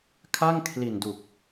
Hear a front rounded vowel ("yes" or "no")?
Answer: no